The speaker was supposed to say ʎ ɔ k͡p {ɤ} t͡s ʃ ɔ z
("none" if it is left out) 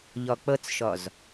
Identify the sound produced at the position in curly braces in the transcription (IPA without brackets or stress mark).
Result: ɤ